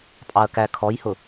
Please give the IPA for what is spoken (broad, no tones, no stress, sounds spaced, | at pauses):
pʼ ɑ ɐ̯ k æ kʰ ɔ j h ʊ